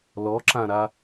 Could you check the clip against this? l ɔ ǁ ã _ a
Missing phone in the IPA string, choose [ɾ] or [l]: ɾ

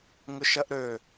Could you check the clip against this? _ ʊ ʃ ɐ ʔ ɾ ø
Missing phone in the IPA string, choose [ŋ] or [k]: ŋ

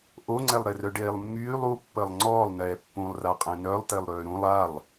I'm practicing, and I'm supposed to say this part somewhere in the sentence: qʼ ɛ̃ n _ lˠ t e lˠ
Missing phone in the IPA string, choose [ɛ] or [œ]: œ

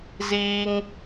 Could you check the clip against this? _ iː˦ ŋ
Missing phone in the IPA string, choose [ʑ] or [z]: z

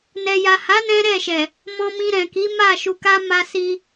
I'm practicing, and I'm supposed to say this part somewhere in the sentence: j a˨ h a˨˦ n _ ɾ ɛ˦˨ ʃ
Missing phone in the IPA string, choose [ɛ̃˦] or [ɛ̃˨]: ɛ̃˦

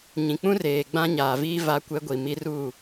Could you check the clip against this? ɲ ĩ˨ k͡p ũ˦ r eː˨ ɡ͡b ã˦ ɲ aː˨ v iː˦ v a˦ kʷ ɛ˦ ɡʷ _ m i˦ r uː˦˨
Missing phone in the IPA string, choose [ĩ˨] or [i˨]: i˨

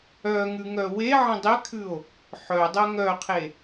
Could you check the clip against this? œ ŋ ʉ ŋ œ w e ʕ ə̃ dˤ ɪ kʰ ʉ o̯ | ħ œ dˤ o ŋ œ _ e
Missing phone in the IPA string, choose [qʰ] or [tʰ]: qʰ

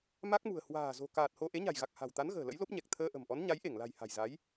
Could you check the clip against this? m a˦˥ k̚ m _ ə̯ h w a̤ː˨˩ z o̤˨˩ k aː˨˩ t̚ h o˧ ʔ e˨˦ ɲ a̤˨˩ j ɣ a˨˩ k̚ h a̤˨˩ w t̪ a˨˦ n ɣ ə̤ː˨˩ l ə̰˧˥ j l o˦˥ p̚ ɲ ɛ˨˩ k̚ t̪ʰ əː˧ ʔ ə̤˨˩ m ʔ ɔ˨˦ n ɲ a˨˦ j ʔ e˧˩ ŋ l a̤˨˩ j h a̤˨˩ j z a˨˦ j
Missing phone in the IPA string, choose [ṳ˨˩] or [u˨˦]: ṳ˨˩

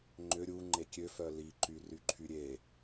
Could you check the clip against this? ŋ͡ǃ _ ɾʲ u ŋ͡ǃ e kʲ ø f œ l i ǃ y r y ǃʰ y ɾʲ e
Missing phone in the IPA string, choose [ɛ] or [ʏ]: ʏ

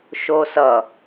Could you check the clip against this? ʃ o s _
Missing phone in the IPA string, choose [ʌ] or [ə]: ʌ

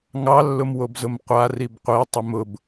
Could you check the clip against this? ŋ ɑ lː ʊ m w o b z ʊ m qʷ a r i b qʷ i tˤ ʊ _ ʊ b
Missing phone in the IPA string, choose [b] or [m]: m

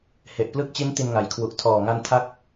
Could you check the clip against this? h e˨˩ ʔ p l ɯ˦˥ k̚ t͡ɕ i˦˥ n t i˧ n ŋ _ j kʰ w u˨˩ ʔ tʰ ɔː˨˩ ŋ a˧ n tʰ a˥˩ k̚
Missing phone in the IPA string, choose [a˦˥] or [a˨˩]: a˨˩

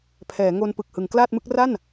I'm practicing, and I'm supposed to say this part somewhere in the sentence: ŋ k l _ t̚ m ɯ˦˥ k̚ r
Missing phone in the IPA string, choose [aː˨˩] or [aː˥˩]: aː˥˩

